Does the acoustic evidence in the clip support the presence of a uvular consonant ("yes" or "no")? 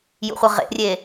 yes